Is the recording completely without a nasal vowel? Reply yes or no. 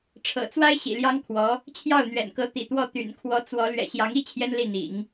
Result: yes